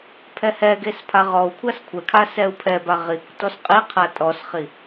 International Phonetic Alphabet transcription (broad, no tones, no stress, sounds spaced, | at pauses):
pʰ ɛ h ɛ ɡ e s pʰ a ʁ ɔ u̯ kʷʰ a s kʷʰ ɛ kʰ a s ɛ u̯ pʰ ɛ b a ʁ i kʷ t ɔ s qʼ i qʰ a tʼ ɔ s χ i